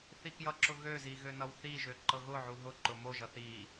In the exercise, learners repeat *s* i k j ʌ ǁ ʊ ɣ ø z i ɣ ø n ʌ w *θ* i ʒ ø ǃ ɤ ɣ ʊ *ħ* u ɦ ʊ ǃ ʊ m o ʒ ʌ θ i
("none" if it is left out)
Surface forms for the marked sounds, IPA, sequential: θ, θ, ʕ

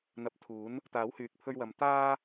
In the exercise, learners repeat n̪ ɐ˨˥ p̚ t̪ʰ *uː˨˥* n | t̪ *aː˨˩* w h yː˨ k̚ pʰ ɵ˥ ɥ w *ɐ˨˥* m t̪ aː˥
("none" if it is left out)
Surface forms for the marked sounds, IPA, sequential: uː˨˥, aː˨˥, ɐ˧

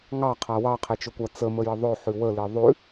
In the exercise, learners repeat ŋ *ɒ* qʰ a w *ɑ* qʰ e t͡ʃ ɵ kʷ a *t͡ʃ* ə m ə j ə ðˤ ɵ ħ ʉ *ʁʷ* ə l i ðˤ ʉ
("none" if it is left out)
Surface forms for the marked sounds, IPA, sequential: ɑ, ɑ, t͡s, w

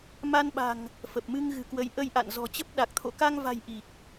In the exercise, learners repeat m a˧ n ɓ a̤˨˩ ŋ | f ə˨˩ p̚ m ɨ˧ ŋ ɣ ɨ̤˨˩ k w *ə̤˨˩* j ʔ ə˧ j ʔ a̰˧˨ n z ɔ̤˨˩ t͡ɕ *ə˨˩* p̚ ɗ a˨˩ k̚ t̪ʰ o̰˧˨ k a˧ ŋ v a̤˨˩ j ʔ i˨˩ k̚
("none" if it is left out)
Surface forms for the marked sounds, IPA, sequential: ə˨˦, ə˦˥

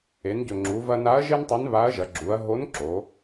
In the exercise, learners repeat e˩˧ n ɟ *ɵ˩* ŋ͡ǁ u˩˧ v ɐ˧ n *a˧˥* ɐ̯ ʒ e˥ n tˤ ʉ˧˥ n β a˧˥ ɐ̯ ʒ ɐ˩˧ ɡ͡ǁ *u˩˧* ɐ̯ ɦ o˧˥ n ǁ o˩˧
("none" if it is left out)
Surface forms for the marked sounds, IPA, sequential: ɵ˩, a˧˥, u˩˧

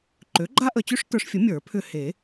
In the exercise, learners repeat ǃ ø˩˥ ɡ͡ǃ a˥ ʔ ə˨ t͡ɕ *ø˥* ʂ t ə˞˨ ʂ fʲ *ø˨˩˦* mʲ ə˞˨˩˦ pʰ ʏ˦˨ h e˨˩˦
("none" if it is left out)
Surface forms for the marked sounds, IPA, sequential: ø˥, ə˨˩˦

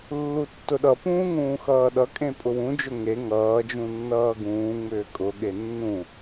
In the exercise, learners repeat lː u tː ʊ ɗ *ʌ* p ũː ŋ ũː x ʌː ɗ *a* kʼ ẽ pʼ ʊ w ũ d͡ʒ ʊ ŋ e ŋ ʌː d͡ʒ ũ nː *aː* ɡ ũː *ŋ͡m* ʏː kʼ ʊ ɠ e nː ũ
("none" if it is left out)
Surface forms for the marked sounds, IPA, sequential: ʌ, ʌ, ʌː, ŋ͡m

